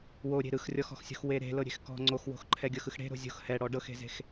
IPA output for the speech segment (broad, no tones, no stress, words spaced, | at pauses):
woɾʲe̤ ɾɯxrʲɔxɔ̤xsʲo̤x weɾe̤ lɤɾʲe̤xkɔ̤ ŋ͡ǀoxwo̤xǃʰɛɡʲɤx ɯxɽe̤ ɾo̤zʲo̤x hɛɽɔ ɖɤxe̤ze̤x